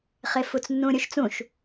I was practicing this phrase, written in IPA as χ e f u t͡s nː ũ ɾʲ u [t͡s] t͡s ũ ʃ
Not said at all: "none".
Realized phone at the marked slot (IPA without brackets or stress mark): ʃ